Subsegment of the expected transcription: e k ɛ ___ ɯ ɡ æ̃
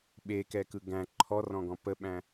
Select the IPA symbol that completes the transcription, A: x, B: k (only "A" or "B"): B